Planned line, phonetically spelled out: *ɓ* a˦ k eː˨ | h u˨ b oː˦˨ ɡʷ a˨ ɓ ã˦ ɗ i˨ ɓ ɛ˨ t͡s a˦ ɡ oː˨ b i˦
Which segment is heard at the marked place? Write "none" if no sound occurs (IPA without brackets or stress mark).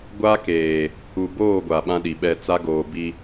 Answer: ɡʷ